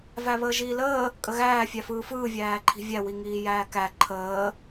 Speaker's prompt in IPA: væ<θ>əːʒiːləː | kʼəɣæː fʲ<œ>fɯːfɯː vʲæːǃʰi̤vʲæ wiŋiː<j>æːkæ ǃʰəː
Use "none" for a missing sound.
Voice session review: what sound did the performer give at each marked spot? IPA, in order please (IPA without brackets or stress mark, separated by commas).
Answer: β, æ, j